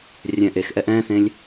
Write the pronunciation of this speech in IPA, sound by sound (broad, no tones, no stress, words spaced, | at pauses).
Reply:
rʲɛ̃ʔexʔɛʔ ɛ̃θẽlʲ